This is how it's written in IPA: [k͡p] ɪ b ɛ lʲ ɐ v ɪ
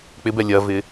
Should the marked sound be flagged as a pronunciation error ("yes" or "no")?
no